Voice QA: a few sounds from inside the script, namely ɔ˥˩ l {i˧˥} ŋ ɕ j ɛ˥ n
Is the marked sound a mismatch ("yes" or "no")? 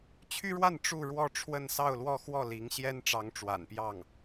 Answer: no